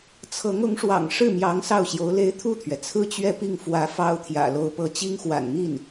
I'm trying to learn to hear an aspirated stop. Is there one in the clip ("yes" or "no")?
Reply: yes